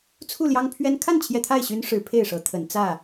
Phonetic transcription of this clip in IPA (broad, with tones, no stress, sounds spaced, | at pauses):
t͡sʰ u˥˨ l j ɑ˦ ŋ pʰ ɥ ɛ˦ n kʰ a˥˨ n t͡ɕʰ j ɛ˦ t̪ʰ a˥˨ ɪ̯ ɕ y˦ n ʂ ɻ̩˨˦ pʰ e˥˨ ɪ̯ ʂ ɤ˨˦ t̪ʰ ə˨˦ n t͡s ä˥˨